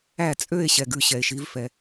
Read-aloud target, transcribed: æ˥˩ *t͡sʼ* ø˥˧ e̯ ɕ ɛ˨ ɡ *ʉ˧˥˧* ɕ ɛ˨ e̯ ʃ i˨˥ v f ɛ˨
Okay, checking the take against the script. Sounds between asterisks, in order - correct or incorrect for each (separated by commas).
correct, correct